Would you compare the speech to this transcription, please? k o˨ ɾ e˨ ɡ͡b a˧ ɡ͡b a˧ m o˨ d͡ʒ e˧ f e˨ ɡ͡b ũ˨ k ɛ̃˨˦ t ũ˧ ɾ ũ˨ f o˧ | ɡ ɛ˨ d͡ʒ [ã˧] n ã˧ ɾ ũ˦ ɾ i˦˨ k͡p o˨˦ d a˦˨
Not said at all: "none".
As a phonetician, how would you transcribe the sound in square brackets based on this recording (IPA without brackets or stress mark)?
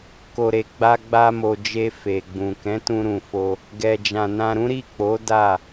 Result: ã˨